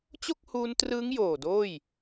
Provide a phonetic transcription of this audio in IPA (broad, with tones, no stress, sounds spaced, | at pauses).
t͡ɕ o˥˩ k̚ h uː˧ n t r ɯː˦˥ ŋ j oː˨˩ d oː˥˩ j